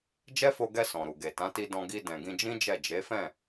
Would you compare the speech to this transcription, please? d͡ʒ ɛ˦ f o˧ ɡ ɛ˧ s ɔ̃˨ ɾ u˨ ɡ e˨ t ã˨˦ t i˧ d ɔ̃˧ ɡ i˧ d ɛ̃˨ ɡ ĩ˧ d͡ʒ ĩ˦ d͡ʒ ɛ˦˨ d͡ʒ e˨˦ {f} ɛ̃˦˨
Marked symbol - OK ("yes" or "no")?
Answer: yes